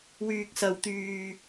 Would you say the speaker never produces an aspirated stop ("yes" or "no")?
yes